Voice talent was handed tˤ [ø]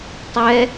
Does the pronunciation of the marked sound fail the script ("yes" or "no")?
yes